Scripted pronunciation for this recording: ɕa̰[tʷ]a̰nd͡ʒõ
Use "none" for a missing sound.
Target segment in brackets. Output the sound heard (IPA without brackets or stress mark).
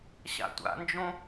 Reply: tʷ